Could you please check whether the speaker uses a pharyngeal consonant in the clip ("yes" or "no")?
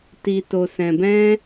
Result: no